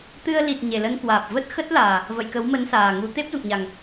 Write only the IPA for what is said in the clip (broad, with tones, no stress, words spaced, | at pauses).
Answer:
t̪ɨ˧ə̯li˨˩t̚ ɲe˨˩lə˧nkwaː˨˩p̚ və˦˥t̚xə˦˥t̚laː˨˩ | və̰˧˨jkə˨˦wmə˨˦n saː˨˩ŋu˨˦ t̪e˦˥p̚zṵ˧˨ŋɲa˨˩ŋ